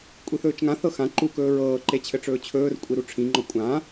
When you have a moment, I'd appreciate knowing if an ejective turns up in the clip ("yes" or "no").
yes